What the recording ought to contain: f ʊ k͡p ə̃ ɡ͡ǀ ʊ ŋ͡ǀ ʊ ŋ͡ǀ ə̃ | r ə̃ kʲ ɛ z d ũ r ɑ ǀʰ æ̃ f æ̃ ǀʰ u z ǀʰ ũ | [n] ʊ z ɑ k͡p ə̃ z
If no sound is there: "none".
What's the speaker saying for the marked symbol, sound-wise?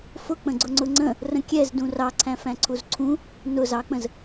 n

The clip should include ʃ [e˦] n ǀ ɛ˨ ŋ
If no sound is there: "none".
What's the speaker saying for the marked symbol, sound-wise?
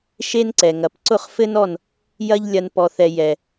e˦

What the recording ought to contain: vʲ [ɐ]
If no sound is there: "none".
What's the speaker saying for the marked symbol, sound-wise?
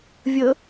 ə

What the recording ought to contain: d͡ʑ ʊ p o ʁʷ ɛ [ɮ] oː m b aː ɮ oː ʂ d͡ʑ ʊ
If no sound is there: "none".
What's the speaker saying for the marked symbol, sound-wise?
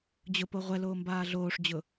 l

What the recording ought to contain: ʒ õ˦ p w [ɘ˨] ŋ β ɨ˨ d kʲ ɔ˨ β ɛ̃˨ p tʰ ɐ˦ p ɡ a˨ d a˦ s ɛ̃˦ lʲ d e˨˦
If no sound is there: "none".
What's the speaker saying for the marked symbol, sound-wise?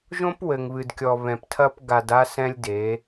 ɘ˨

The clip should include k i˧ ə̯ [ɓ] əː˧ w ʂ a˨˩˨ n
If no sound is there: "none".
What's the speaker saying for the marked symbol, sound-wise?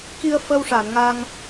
f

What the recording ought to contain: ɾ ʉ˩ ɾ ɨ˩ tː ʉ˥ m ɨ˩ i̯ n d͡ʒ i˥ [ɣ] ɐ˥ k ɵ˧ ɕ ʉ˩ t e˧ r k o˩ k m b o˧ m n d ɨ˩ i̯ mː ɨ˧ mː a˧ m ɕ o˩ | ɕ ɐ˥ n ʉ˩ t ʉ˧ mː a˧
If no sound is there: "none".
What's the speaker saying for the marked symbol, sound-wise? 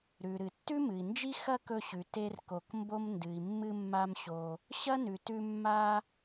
x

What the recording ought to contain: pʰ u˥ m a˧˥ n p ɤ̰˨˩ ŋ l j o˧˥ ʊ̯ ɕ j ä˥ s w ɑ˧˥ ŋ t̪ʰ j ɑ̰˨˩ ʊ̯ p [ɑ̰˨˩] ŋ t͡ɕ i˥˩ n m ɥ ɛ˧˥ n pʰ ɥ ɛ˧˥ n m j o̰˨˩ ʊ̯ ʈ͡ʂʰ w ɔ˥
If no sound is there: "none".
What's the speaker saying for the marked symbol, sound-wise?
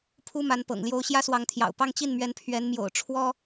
ɑ˥˧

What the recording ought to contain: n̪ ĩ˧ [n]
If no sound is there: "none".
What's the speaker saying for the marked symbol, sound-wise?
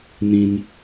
n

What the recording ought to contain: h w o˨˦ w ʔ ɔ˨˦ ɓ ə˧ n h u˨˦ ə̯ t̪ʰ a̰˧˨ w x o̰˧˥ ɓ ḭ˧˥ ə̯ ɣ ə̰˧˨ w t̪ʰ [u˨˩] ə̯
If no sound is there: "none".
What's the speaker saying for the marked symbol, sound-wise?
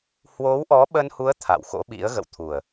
u˨˩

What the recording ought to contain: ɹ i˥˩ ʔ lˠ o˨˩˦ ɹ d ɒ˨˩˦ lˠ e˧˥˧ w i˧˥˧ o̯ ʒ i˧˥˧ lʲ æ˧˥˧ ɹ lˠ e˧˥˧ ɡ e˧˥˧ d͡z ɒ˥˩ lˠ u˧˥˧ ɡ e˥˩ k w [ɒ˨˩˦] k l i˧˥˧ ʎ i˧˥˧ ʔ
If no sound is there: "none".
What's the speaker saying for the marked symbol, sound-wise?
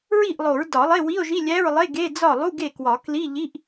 ɒ˨˩˦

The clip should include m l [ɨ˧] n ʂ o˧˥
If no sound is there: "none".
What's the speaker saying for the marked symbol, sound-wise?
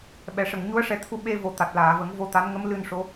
ɨ˧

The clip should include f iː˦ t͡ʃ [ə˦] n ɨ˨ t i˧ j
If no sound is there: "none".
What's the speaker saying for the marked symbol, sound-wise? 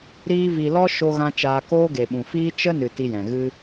ə˦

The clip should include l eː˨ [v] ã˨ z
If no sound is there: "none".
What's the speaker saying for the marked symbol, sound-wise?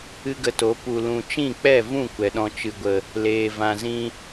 v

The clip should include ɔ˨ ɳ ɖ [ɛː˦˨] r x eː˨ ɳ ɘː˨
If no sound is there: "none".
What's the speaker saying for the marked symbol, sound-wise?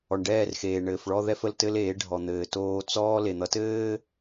ɛː˦˨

